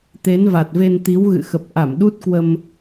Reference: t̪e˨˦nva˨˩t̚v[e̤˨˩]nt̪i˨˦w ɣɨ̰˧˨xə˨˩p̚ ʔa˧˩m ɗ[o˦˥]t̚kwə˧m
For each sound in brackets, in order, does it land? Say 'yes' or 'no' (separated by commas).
no, no